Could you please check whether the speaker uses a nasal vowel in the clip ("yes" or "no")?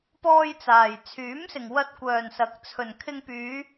no